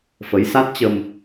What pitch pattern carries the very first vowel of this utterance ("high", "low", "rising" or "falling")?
rising